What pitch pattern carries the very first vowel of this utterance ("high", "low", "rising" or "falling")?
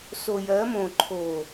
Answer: low